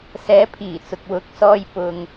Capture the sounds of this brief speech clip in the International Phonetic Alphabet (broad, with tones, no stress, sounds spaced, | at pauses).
s ɛː˨˧ pʰ iː˨˩ t͡s ʊ˨ k̚ w ʊ˨˥ k̚ s ɔː˧ j p ʊ˧ ŋ